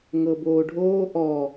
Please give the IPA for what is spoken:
ŋ ɤ b oː ɖʱ oː ʔ ɔ

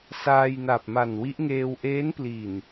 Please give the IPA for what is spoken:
s aː˧ j n a˨˩ p̚ m a˨˩ n w i˦˥ ʔ ŋ eː˧ w ʔ eː˦˥ n p l i˨˩ n

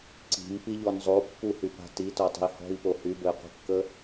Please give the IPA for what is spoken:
ǀ i̤ m p i ʎ ɔ n zˤ o pː u h y p a̤ t i t ɔ tˤ ə̤ i̯ h ɔ̤ i̯ p o h y b ə i̯ qʷ ə̤ kː ə

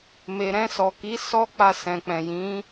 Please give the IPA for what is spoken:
m e˨ ɾ ɛ̃˧ s ɔ˨ k i˨˦ s ɔ˦ k͡p a˧ s ɛ̃˨ k͡p ɛ̃˨ j ĩ˨˦

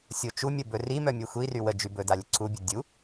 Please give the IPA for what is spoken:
sʲ o t͡ʃ u mʲ ə b ɵ r i m œ mʲ e xʷ i r y w ə d͡ʒ y b ɵ d a lʲ ə ǀʰ u bʲ ɵ dʲ u

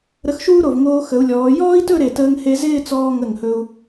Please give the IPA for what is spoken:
ɾ ə˧ x ʃ uː˥ ɾ o˧˩ v ŋ oː˧ x ə˩˧ u̯ lʲ ɔː˩˧ j ɔː˥ i̯ t ɵ˥˧ ɾ e˧˩ t əː˧ ŋ h e˧ z ɪː˥˧ t͡s ɔː˧ ŋ ə˧˩ ŋ h ɵ˧ u̯

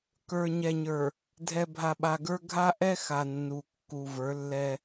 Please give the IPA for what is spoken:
k ə˞˨ ɲ ɛ˨ ɲ ə˞˨ | dʱ ɛ˨ bʱ a˨ ɓ a˨ ɡ ə˞˦ ɡʱ a˦ ʔ ɛ˦ x a˨ nː u˨ kː u˨ v ə˞˨˦ lː ɛ˦

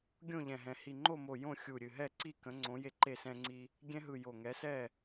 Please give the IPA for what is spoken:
ɡʲ õ˥˨ ʎ ɛ̃˧˩ ɦ ɛ̃˧˩ h i˧˩ ŋ͡ǃ o˥˨ m o˧˩ j õ˥˨ xʲ u˧˩ ɾʲ ɨ˧˩ ɦ ɛ˥˨ ǀ i˥˨ k ə̃˨˥ ŋ͡ǀ õ˨˥ j e˦ ǃ e˥˨ s ɛ̃˦ ŋ͡ǀ i˦ | ɡʲ ɛ̃˦ ɦ ɯ˧˩ j o˧˩ ŋ ɛ˨˥ s ɛ˥˨

